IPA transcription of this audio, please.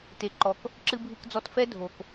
t e˩ ǃ ɔ˩ k | ǁ ɨ˧ bʱ ɨ˧ k d͡z ɔ˧ t f ɛ˥ dʱ o˩ k

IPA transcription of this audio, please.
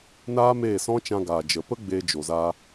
n aː˦ m eː˦˨ s ɔ̃˦ t͡ʃ ã˧ ɡ aː˨ d͡ʒ ə˨ p ə˦ ɡ͡b eː˧ d͡ʒ o˨ z aː˧

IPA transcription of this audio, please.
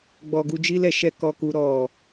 ɡ͡b ɔ˨ ɡ u˧ d͡ʒ i˦ l ɛ˧ ʃ ɛ˦ k ɔ˧ k u˧ ɾ ɔ˨

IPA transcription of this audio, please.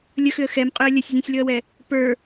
lʲ ə x ʏ ə̯ x ɛ m qʼ ʏ ə̯ lʲ ə sʲ zʲ õ sʲ l ʏ ə̯ w ɛ | p ə˞

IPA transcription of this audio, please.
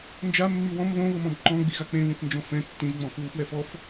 n d͡ʒ a mː i w ɔ̃ m β õ β ɤ m ɔ̃ b ǃ ɔ̃ ɡ͡b i ɣ a k͡p ẽ β ĩ θ n d͡ʒ ɔ̃ f ɛ̃ tː ĩ ʒ ŋ͡m ɔ̃ f ɯ w f w ɛ f ɔ f

